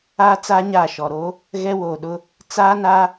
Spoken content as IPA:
aː˦t͡sa˦ɲaː˦˨ ʃɔ˨ɾo˦ | ɣɛ˦woː˨ɗʊ˦ | t͡saː˦na˦

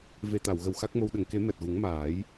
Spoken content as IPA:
ve˨˩t̪a˨˩˨wɣə˨˩w xa˦˥k̚mo˧w ɗə˨˩˨ŋke˨˩˦ mɛ˨˩t̚ɣu˨˩˦ŋmaː˨˩˦j

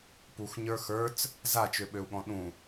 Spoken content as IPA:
puxɲə˞ xə˞t͡s | zat͡ʃøɓøu̯ɠɔ̃ ɗũ

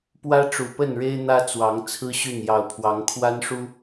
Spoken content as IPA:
pwä˦ʈ͡ʂu˨˩pə˥˨nɻe˦ɪ̯ n̪ä˦t͡swɑ˨˦ŋ t͡sʰɹ̩˦ɕy˥˨n jɑ˨˩ʊ̯pʰwɑ˨˦ŋkʰwa˦nʂu˦

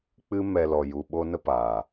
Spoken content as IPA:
k͡pɨ˦mɛ˧lɔ˨ ju˨ ɓo˦nə˦paː˨

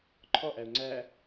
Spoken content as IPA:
ǃʰɔʔæʊ̯ ŋ͡ǀæ

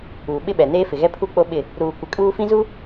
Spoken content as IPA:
uː˨ɓɪ˦ɓɛ˨ neː˦fɪ˨ɣɛ˦ pʰu˦ k͡po˦ɓɪ˦˨ | ɾuː˨ kʷɪ˨kʼuː˦ fĩ˦zu˦

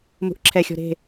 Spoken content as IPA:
mṳʔǁʰɛxʲɔ̤ ɾe̤

